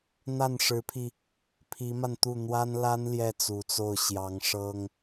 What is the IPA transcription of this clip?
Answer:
n̪ a˥˩ n ʂ ɻ̩˧˥ pʰ i˧ | pʰ i˧˥ m a˧ n t̪ u˥˩ n̪ w a˥ n l a˥ n l j ɛ˥˩ t͡s u˨˩ t͡s o˥˩ ʊ̯ ɕ j ɑ˧˥ ŋ ʂ ɤ˥ ŋ

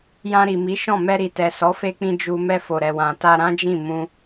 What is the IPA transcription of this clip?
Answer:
j ã˧ ɾ i˨ m i˨˦ ʃ ɔ̃˦˨ m ɛ˧ ɾ i˨ t ɛ˨ s ɔ˨˦ f e˧ k͡p ĩ˧ d͡ʒ u˧ m ɛ˧ f o˨ ɾ ɛ˨ w ã˨ t a˧ ɾ ã˦ d͡ʒ ĩ˦˨ m ũ˧

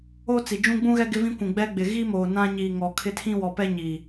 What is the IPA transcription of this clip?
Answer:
o˦ t͡s i˨ d͡ʒ ũ˦ ɡ͡b ũ˦ ɣ ɛ˦ ɡ ɪ˦ v ĩ˦ kʷ ũ˨ ɡ͡b ɛ˦ ɡ͡b ɪ˨ ɣ i˦ m oː˨ n ã˦ ɲ iː˨ ŋ ɔ˨ kʰ ɪ˦ tʰ ĩ˦ w ɔ˨ p ɛ˦ ɲ i˨

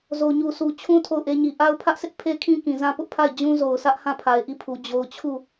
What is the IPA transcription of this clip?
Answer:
z o˨ ɲ u˨ sʰ u˨ t͡ɕʰ ũ˦ tʰ o˦˨ ʊ̯ ʔ e˦ ɲ i˨ ʔ a˦ ʊ̯ pʰ ä˦ ʔ s ɪ˦ ʔ pʰ e˦ kʰ ĩ˦ k ĩ˨ z ã˦ p ʊ˦ ʔ pʰ a˦˨ ɪ̯ d͡ʑ ũ˦ z o˨ ʊ̯ sʰ ä˦ ʔ h ã˦˨ pʰ a˨ ɪ̯ ʔ i˦˨ pʰ u˨ d͡ʑ o˨ ʊ̯ t͡ɕʰ u˦˨

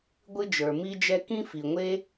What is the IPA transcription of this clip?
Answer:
ɡʷ ɨ˥ d͡ʒ ə˞˩ m i˥ d͡ʒ ɛ˥ k ĩ˥ f i˩ ŋʷ e˥

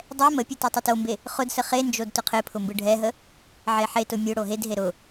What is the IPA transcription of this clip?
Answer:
dˤ ɛ m ə pʲ ɯ t o tˤ ə t o m b e | χ ʊ d s ə χ e n d͡ʒ o d t ʊ qʰ e pʰ ʊ m b ɯ ɖʱ ɛ ɦ ə | ʕ e ħ e t ʊ mʲ ʊ ɽ o ɦ e d ɦ e ɾ ʊ

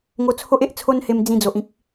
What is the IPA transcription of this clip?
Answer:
ŋ o˧ t͡sʰ o˦ ʔ e˦ ʔ t͡sʰ o˧ n h e˧ m d͡z ĩ˧ d͡z o˨ ʔ ĩ˦ k̚

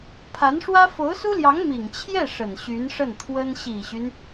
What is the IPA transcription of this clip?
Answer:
pʰ a˧˥ n ʂ w ä˥ f o˧˥ ʊ̯ s u˥ l j ɑ˧˥ ŋ m i˨˩ ŋ t͡ɕʰ j ɛ˥˩ ʂ ə˨˩ n ɕ y˧˥ n ʂ ə˥˩ n t̪ʰ w ə˥ n ɕ i˨˩ ɕ y˦ n

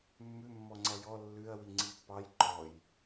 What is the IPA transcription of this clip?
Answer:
mː ʉ mː ɔ ŋ͡ǀ æ j ɔ lː ʉ ɐ̯ w i ŋ͡ǀ i pː ɑ j ǃ ɔ j

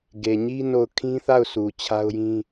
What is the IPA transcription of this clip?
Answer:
ɡ e˨ ɲ i˦ n o˦˨ ʊ̯ kʰ ĩ˦ θ a˦˨ ʊ̯ sʰ u˨ t͡ɕʰ a˦ ʊ̯ j ĩ˦

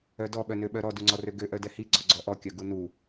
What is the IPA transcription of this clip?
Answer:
œ d ɔ ɓ œ n ø ɓ œ ɾ ɔ d u ŋ͡ǀ ɔ r ø ɡ ø ʔ œ d ɛ h i ɡ͡ǀ ɔ ɡ͡ǀ ɔ ʔ ɔ kʲ œ ɡ u n u

